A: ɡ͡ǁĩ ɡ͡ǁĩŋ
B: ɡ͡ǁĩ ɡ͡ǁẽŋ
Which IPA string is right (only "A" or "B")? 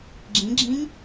A